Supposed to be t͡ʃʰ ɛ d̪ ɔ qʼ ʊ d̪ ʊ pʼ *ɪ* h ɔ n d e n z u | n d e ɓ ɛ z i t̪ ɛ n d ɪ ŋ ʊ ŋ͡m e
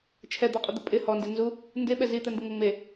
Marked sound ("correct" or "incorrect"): correct